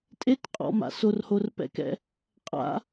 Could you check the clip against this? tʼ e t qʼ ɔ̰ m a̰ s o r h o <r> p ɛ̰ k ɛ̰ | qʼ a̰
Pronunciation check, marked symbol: correct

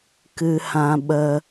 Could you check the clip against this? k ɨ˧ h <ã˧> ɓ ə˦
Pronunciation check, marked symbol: correct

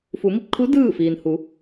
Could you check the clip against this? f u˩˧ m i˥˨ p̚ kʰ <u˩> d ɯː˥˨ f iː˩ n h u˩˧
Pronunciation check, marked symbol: incorrect: u˧˥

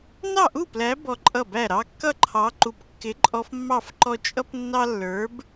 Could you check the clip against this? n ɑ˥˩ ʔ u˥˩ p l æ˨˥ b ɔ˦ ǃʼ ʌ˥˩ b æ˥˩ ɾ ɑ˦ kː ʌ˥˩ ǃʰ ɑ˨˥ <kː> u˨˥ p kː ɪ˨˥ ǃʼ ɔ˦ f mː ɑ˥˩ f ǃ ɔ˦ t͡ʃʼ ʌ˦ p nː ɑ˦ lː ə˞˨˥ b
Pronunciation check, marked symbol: incorrect: ǃ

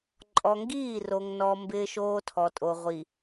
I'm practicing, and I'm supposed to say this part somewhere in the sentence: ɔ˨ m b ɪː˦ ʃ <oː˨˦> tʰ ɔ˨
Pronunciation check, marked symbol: incorrect: oː˦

